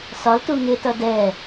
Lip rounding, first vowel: rounded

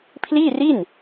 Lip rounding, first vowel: unrounded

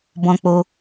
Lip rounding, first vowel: rounded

